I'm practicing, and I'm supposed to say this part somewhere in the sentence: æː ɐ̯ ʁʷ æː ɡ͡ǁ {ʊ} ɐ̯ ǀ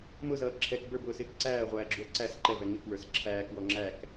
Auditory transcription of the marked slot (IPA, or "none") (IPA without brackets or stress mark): u